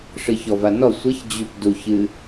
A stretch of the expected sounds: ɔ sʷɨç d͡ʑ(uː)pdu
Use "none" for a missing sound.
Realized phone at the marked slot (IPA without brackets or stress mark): u